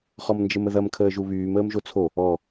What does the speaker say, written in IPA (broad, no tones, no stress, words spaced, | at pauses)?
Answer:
χɔmnd͡ʒəməðɐm kʰəːʒuβyːm əːmʒot͡sʰo | ɔ